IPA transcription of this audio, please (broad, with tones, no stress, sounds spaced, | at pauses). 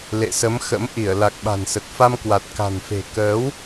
l ḛ˧˨ s ə˨˦ m x ə̰˧˥ m ʔ i˧˩ ə̯ l a˨˩ k̚ ɓ a̤˨˩ n s ə˨˩ t̚ f a˧ m k w a˨˩ t̚ k a̤˨˩ n f e̤˨˩ k əː˨˦ w